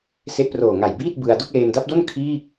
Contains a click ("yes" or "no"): no